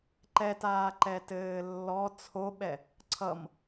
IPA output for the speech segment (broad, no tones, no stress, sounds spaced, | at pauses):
ǃ ɛ t aː ǃ ɛ t ɘː lː ɔ t͡sʰ o ɓ ɛ | ǀʰ ʌ m